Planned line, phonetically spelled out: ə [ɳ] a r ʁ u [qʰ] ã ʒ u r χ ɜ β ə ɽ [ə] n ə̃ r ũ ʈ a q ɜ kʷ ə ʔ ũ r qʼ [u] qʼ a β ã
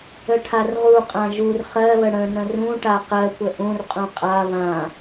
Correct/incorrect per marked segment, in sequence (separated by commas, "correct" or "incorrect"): incorrect, incorrect, incorrect, incorrect